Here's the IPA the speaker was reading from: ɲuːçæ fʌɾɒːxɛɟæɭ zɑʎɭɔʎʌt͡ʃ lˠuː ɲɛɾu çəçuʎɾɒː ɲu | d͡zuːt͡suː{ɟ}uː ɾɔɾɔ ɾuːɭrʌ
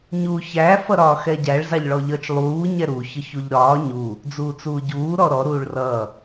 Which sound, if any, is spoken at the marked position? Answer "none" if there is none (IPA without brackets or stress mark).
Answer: ɟ